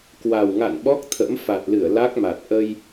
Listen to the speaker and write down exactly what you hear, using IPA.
kwa˨˩wŋa̰˧˨n ɓɔ˦˥k̚ t̪ʰə̰˧˥m fa˨˩t̚lɨ˧˩ə̯ la˦˥k̚ma˨˩t̚ ʔə˧j

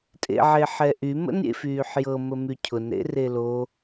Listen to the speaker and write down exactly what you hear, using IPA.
tʼḛʕeħɛʔy mə̰nɾʲḛfyːħjɤ məmycʰʊn ɾḛrelo

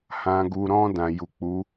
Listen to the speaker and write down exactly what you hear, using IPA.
hã˨ɡu˨ɾɔ̃˧ dã˨ ju˨k͡pu˨˦

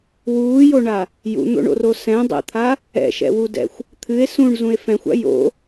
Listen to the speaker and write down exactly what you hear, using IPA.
wuːjoɳa | jṵn̪o̰ɳo̰ro sɛ̃dˤɛ̰t̪ʰa | ɛ̰ʃɛ̰wudɛ̰xʷ | t̪ʰɨe̯ sũɳzũe̯ fɛ̃xʷa̰ jo̰

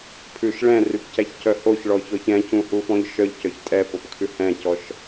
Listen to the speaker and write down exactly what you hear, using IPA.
pʰʉʃ ɭɛ̃rypcæçcœ hoçɭɔçɔç ɛ̃cũhufɔ̃ʎ ʃœʎcœç tʼɛpopkʰʉ hɛ̃cɔʃ

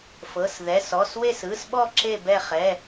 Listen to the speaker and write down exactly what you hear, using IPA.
fɤ˩˧˩s ðɛ˩˧˩sɔ˩˧˩s we˦˨sɯ˩˧˩sɓɔ˦˨ ǁe˦˨bɛ˦˨χɛ˩˧˩

